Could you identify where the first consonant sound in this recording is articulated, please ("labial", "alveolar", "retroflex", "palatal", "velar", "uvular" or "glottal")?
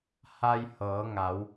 glottal